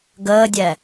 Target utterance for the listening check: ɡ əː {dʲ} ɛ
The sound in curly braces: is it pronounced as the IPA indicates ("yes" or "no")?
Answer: yes